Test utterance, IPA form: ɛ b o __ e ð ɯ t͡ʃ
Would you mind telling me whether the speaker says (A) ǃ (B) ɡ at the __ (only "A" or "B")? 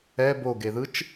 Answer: B